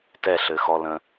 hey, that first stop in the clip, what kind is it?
plain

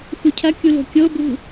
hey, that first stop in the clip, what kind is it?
aspirated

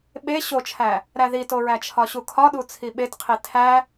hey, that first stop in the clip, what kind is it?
implosive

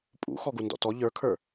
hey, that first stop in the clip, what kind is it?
ejective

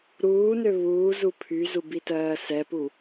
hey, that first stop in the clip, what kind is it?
aspirated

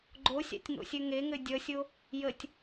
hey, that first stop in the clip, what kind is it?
click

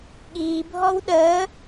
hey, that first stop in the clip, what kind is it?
implosive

